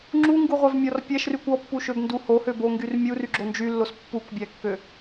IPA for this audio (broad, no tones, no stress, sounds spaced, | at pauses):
ŋ͡ǁ u ŋ ɡ u ʁʷ æ v mʲ ɔ r pʲ æ ʃ r y kʷ ɔ pː u ʃ ø b n d u h o h ø b o ŋ ɡ y r mʲ u r y ɡ͡ǁ o n d͡ʒ y lː o s pː u kʷ bʲ æ kː ø